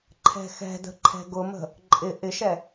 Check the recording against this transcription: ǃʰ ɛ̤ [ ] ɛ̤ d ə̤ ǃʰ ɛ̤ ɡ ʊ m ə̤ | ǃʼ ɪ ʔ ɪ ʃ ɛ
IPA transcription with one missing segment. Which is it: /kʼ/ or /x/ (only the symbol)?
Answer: x